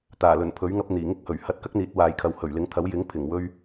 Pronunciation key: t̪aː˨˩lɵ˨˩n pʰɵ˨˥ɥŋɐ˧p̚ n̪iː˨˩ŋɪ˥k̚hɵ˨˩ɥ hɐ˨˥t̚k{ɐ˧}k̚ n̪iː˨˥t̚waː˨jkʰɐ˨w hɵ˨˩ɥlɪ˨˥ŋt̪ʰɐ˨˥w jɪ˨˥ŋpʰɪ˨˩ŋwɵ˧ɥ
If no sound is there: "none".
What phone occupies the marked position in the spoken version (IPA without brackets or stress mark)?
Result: ɐ˥